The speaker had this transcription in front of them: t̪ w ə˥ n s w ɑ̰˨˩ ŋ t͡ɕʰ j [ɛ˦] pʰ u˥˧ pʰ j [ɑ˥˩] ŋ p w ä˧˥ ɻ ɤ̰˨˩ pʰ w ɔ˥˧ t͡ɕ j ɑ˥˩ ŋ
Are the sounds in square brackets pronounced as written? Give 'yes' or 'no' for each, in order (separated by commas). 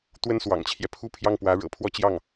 yes, yes